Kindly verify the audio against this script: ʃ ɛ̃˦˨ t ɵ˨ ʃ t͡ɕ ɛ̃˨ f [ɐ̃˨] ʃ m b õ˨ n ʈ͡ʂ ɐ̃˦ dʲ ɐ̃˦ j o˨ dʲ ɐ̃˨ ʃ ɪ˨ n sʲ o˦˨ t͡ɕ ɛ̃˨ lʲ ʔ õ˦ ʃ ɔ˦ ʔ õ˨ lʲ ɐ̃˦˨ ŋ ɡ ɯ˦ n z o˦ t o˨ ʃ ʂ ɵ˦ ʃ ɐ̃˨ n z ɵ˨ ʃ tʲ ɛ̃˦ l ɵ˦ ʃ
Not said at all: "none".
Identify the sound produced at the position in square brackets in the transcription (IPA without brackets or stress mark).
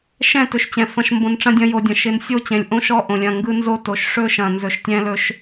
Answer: ɐ̃˨